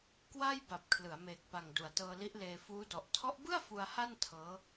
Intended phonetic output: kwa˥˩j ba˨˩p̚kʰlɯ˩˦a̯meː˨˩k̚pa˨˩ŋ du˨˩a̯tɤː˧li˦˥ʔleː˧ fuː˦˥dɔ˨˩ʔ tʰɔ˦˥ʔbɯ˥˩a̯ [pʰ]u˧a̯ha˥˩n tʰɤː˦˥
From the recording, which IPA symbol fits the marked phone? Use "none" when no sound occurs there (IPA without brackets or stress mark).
f